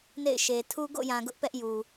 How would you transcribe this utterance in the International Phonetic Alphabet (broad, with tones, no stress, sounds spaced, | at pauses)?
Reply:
n ḛ˦˨ ɪ̯ ʃ e˨ tʰ u˦ ɡ o̰˦˨ j ã˨ ɡ ʊ˦ ʔ p ɛ˦ ʔ j u˨